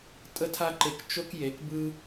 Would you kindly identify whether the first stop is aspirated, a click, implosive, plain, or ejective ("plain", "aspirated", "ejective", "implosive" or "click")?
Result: ejective